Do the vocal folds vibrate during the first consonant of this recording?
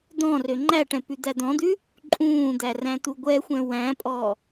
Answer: yes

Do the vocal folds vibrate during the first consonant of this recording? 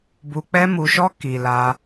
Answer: yes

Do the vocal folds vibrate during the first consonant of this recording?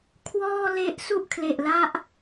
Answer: no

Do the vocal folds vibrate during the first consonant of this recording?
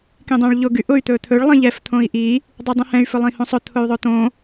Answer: no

